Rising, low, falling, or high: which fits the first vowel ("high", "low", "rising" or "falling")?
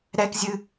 high